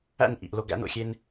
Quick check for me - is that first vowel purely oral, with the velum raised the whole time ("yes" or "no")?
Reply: yes